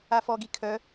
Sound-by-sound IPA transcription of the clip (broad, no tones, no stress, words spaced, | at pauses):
afɔɡi kʰœ